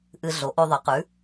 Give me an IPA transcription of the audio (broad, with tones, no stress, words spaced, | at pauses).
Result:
ʔɨ˧ɮo˩˥ʔo˧ ðˤɐ˩˥qʉ˩˥